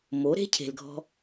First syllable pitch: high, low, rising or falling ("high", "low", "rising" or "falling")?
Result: rising